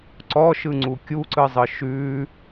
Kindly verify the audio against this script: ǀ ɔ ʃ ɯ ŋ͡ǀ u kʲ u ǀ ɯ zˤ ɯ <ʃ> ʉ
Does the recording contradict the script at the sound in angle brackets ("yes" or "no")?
no